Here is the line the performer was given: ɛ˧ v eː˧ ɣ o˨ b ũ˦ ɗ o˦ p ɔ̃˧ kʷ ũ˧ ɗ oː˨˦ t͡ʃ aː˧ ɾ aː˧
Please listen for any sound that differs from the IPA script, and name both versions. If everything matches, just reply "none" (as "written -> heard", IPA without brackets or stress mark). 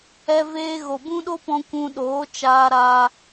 none